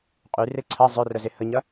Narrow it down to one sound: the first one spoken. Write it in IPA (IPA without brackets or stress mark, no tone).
qʼ